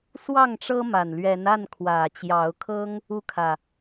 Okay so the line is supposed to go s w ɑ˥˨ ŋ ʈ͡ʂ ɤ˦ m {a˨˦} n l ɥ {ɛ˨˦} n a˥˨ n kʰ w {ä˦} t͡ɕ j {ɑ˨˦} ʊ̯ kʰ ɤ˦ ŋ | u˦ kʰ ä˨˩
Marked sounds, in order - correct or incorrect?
incorrect: a˨˩, correct, incorrect: ä˨˩, correct

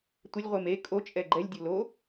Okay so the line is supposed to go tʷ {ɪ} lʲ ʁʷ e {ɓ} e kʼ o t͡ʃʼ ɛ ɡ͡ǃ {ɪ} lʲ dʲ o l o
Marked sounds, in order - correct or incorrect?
correct, incorrect: m, incorrect: ɛ

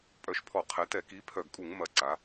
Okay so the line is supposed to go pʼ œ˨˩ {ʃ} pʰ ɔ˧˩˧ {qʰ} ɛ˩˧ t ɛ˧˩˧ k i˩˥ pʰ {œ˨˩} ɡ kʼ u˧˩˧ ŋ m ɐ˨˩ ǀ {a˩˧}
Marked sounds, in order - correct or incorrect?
correct, correct, correct, correct

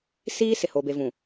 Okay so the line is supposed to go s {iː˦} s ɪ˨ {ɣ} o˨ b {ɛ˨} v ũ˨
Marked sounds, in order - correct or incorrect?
correct, incorrect: h, incorrect: e˨

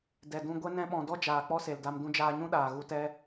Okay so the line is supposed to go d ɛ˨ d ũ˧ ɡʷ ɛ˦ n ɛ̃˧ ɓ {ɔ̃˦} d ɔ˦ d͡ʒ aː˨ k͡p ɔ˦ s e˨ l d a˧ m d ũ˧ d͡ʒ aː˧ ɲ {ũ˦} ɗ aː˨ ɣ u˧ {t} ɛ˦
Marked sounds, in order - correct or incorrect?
incorrect: ɔ̃˨, correct, correct

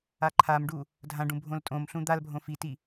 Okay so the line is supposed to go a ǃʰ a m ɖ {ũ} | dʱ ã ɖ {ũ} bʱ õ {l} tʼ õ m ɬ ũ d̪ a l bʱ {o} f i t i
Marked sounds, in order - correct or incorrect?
incorrect: u, correct, correct, incorrect: õ

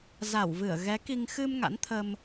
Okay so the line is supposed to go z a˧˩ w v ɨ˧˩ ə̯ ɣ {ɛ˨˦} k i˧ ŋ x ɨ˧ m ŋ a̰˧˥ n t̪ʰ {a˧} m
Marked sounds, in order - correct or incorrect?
correct, incorrect: ə˧

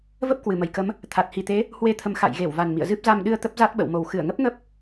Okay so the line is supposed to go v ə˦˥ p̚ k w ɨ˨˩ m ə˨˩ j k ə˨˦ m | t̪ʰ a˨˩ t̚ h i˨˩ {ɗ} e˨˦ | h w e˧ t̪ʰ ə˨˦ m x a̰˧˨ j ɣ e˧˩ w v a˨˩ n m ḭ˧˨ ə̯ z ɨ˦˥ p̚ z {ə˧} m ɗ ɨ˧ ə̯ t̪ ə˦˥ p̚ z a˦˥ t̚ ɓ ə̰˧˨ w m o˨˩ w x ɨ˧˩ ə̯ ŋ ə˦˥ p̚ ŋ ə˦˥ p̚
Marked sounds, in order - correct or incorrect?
incorrect: t̪, incorrect: a˧

